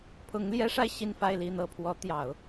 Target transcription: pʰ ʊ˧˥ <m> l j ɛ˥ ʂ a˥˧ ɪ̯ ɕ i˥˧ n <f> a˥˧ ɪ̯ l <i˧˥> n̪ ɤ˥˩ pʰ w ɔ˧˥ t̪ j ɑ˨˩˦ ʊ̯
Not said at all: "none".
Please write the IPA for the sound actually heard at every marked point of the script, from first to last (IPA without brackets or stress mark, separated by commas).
ŋ, f, i˥˧